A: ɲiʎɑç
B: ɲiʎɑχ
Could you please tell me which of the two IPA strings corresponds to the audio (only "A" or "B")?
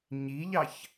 A